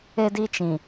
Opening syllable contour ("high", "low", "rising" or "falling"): high